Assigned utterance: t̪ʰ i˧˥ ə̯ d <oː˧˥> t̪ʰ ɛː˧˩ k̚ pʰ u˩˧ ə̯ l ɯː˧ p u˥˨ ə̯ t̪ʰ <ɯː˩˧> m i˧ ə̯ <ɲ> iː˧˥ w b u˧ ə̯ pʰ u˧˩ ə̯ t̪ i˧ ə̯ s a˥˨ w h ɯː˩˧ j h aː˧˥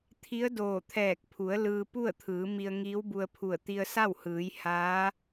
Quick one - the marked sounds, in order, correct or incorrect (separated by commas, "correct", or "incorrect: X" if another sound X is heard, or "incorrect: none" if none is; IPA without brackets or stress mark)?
incorrect: oː˧˩, correct, incorrect: ŋ